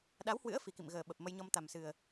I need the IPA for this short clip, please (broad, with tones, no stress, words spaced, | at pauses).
ɗa˨˦whwɨ̰˧˥ə̯ fi˨˩kḭ˧˨mɣəː˨˩ɓə˨˩p̚ mə˧jɲɔ˧mt̪a˨˩msɨ˨˩ə̯